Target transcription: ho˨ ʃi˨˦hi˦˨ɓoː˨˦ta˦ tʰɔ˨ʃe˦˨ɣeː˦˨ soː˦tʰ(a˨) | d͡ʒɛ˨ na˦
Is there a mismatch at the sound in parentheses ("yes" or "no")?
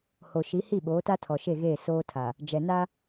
no